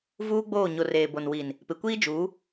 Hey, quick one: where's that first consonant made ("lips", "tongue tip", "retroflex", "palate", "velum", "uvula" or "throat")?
lips